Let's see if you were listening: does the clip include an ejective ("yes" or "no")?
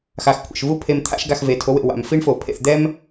no